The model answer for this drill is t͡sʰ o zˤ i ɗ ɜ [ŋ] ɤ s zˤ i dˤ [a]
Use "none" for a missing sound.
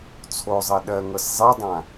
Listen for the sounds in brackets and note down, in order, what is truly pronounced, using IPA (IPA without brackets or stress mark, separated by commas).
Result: ŋ, ã